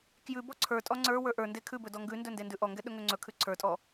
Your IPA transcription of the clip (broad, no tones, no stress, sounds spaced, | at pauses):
k j ʉ b ɔ ǀʰ ə˞ tʼ ɔ ŋ͡ǀ ə˞ w ə˞ ʔ ə˞ n d e kʰ ʉ b ɵ d ɔ ŋ ɡ ʉ n d ɵ n d e n d ʉ ʔ ɔ ŋ ɡ ɛ ɗ ɵ ŋ ɵ ŋ͡ǀ ɵ kʰ ʉ ǀʰ ə˞ tʼ ɔ